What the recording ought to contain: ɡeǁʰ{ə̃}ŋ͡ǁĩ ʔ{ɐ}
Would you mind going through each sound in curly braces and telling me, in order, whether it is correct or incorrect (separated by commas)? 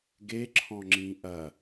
incorrect, correct